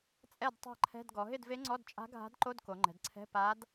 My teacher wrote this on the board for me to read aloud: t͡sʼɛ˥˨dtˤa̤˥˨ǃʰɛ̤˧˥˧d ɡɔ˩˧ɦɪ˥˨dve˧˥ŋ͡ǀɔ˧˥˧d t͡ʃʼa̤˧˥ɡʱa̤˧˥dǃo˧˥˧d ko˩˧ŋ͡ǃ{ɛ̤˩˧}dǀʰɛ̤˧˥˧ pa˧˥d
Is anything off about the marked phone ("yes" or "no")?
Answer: no